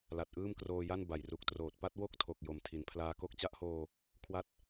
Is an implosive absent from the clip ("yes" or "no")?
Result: yes